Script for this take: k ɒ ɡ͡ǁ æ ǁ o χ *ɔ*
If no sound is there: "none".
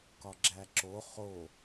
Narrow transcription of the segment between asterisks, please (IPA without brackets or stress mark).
o